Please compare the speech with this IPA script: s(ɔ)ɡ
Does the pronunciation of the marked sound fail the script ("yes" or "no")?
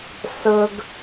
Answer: yes